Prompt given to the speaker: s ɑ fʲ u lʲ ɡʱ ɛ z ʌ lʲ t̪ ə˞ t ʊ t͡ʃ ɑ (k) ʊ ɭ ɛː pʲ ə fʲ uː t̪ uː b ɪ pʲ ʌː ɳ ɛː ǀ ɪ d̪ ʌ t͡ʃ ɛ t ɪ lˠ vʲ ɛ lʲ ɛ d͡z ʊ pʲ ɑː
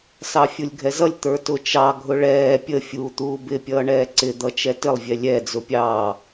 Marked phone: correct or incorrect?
incorrect